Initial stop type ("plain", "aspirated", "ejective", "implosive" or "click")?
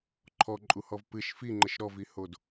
click